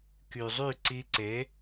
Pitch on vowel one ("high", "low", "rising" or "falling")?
low